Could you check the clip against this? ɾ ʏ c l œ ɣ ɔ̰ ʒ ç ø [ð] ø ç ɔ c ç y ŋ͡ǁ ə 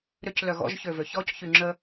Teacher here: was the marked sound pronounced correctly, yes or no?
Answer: no